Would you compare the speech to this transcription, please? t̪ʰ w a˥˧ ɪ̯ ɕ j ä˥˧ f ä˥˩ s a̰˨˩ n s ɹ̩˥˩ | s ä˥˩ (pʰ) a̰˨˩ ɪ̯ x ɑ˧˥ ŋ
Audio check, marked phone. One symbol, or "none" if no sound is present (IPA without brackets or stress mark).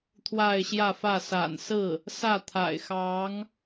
t̪ʰ